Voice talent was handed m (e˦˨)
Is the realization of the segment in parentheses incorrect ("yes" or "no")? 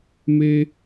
yes